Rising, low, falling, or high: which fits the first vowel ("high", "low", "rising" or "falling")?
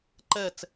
falling